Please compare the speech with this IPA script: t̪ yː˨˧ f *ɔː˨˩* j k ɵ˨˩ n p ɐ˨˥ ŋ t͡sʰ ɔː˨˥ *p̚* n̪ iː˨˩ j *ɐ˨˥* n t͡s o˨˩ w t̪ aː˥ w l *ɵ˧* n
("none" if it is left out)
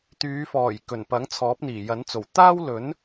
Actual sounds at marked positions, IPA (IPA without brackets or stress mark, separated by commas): ɔː˨˩, p̚, ɐ˨˥, ɵ˨˥